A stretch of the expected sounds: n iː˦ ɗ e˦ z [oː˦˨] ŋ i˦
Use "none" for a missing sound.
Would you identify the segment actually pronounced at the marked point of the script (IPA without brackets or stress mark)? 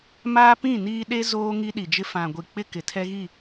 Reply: oː˦